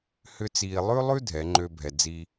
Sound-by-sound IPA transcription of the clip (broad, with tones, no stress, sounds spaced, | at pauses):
h ʏ˦ t͡s iː˧ lˠ ʉ˦ lˠ ʉ˦ dʱ ɛ˨˦ ŋ͡ǃ ø˦ bʱ ɛ˧ d͡z i˧